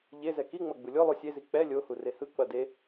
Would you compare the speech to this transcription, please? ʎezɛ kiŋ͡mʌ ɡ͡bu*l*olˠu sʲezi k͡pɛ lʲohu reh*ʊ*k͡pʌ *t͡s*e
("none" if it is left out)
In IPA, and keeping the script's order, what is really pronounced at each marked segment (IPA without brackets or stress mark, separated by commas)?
lʲ, ɯ, d